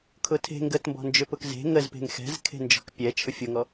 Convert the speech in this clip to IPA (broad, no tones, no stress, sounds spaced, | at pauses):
kʰ ʊ tʰ e̤ ŋ ɡ ə t m b ɔ̤ n d͡ʒ ʏ p ʊ k z e̤ ŋ ə z p e̤ ŋ x ɛ̤ z kʰ e̤ n d͡ʒ ɔ̤ k pʲ ɛ t͡ʃʰ ʊ fʲ ʊ ŋ ɔ